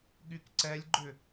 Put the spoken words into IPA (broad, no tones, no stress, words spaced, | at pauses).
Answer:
ɠykǀɛlʲɡ͡ǃʏ